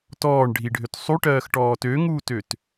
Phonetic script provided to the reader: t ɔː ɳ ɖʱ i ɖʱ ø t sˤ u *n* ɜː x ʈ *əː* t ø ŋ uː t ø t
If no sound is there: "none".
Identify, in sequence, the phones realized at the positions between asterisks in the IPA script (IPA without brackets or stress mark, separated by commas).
ʈ, ɔː